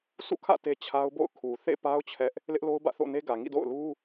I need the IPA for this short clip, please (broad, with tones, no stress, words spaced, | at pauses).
sʰṵ˦˨kʰä̰˦˨ te˦t͡ɕʰa˦ʊ̯bo̰˦˨ʊ̯ kʰu˨ θḛ˦˨pa˦ʊ̯ t͡ɕʰɛ˦ʔ | lɪ˦ʔlo˦ʊ̯bä̰˦˨ θo̰˦˨ne˦ɡä˨ ŋḭ˦˨do̰˦˨ʊ̯lu˦